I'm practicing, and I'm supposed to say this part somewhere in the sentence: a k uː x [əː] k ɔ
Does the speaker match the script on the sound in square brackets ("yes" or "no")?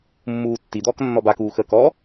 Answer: yes